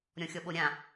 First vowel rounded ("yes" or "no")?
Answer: yes